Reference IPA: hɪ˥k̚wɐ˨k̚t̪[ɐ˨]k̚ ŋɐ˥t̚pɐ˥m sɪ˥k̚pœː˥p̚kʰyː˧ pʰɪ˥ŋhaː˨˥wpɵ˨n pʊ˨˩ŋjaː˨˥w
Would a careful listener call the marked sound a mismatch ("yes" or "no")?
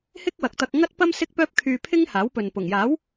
yes